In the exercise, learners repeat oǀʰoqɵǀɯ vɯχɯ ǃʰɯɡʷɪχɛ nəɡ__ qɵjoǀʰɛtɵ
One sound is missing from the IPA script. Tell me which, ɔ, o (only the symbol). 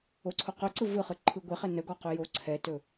ɔ